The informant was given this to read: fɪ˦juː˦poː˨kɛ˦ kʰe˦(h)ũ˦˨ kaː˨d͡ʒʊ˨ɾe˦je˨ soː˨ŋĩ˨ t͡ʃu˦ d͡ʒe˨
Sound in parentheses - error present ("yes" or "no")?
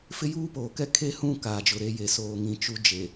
no